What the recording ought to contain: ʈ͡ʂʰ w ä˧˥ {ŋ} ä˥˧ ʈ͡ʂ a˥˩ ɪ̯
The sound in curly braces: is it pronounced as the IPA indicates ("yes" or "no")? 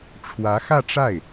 no